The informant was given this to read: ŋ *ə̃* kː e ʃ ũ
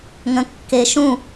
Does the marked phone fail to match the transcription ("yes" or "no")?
no